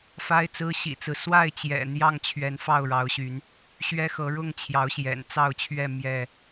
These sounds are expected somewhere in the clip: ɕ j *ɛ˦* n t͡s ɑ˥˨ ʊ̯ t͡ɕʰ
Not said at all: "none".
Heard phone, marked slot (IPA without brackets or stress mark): ɛ̰˨˩